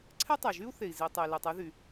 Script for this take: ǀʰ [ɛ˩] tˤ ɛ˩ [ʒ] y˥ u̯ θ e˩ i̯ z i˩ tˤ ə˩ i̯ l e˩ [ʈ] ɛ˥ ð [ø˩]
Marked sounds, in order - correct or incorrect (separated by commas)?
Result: incorrect, correct, incorrect, incorrect